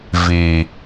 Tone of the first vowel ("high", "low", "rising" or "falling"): low